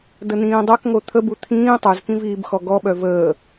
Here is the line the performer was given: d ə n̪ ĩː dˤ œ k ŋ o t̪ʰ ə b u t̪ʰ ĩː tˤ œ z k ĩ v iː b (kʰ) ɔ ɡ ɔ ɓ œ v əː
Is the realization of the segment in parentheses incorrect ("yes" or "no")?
yes